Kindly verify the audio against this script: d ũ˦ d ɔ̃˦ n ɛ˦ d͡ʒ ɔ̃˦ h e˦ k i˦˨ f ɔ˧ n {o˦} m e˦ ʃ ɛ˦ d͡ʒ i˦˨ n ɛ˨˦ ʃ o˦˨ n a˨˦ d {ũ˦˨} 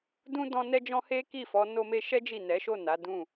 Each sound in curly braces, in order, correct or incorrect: correct, correct

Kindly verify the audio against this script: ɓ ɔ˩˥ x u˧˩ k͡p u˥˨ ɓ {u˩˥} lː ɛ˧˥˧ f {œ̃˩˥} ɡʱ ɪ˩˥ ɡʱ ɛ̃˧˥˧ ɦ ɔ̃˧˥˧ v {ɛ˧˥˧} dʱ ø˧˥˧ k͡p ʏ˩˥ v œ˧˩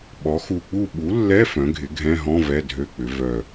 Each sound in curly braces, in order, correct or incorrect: correct, correct, correct

